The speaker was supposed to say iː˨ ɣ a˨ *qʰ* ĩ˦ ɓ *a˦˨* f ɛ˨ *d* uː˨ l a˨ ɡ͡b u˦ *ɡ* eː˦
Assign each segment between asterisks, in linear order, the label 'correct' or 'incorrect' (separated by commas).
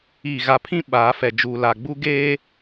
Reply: incorrect, incorrect, incorrect, correct